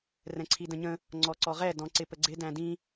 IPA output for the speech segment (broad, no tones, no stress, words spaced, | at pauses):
rɛ̃ǀʰidə̃ɲə̃ | ŋ͡ǀɔǀɔʁɛ dɔ̃ǀɪpəɡ͡ǀɪ dæ̃dĩ